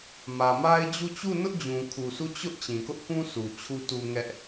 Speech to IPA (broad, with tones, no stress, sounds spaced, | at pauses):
m ä˨ m a˦ ɪ̯ d͡ʑ u˦˨ t͡ɕ u˦˨ n ʊ˦ ʔ d͡ʑ ũ˨ kʰ u˨ sʰ u˦˨ t͡ɕ ʊ˦ ʔ t͡ɕ ĩ˨ k ʊ˦ ʔ k ũ˦ s u˨ t͡ɕʰ u˦ t u˦ ŋ ɛ˦ ʔ